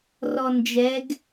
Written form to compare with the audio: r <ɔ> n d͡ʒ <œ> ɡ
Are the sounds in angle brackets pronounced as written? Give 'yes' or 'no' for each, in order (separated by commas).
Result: yes, no